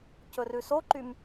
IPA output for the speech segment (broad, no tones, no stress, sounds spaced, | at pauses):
c ɵ r ʉ s o ǃ y m